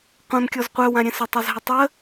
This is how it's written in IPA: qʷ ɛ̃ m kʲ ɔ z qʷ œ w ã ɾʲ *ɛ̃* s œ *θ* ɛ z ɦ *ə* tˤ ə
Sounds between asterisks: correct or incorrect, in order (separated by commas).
correct, incorrect, correct